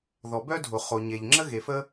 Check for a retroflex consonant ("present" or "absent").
absent